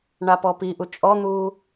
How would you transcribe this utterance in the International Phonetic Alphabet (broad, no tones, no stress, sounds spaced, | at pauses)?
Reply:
ɳ a p ɔ p i ʔ u t͡ʃʼ ɔ n̪ uː